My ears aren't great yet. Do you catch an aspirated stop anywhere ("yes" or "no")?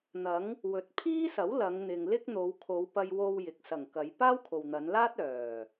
yes